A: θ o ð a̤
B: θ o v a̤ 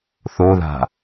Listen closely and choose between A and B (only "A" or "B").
A